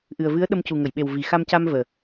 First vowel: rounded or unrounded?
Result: unrounded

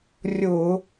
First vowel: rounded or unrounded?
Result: rounded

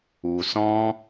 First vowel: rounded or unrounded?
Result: rounded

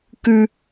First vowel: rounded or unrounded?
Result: rounded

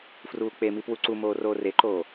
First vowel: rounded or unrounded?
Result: rounded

